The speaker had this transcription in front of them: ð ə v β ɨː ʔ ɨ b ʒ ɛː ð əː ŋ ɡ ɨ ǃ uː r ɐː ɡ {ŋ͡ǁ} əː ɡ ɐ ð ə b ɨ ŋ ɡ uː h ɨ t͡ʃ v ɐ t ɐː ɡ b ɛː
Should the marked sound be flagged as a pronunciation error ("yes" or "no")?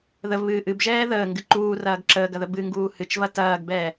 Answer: yes